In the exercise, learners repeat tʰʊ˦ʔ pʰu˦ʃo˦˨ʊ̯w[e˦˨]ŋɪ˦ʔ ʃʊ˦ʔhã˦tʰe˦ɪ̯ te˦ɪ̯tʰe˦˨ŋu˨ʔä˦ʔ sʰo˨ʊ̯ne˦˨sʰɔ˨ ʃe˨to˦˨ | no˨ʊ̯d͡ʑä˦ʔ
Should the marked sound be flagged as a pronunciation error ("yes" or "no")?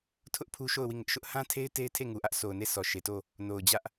yes